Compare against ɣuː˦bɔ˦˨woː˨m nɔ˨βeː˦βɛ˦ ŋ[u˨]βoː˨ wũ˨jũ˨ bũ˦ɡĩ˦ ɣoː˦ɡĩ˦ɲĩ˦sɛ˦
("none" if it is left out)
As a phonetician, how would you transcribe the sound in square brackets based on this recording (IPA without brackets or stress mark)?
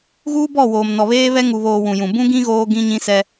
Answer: u˨